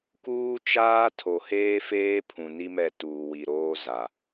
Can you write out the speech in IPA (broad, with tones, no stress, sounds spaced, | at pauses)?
k uː˦ t͡ʃ aː˦ tʰ o˨ h eː˦ f eː˦ pʰ ũ˨ n i˦ m ɛ˦˨ t uː˨ w i˨ ɾ oː˦ z a˨